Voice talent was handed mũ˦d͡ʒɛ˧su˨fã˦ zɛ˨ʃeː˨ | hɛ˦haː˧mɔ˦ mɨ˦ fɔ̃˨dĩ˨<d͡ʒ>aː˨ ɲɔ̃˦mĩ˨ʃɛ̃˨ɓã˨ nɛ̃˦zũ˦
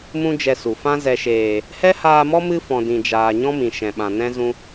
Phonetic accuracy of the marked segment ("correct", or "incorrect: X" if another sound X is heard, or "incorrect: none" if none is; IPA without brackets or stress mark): correct